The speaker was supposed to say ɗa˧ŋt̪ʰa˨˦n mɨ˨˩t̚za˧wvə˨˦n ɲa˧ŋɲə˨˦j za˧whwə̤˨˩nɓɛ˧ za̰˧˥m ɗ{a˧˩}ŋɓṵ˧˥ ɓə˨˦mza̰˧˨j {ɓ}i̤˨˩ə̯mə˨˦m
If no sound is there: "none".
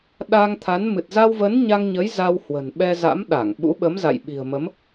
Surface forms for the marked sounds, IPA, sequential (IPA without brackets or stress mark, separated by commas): a˧˩, ɓ